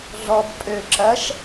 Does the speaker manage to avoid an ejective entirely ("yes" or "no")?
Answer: no